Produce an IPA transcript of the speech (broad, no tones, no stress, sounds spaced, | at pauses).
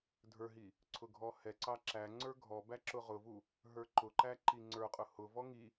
dʱ ə˞ ɦ i | ǀʰ ʊ ɡʱ ɔ h ɛ ǀ ɑ ǁ æ ŋ͡ǀ ə˞ ɡʱ ɔ b æ ǁ ʊ ʁ ʊ v u | ɦ ə˞ ǃ ʊ ǃ æ ǃ i ŋ͡ǀ ə˞ qʼ ʊ h ʊ v ɔ ŋ i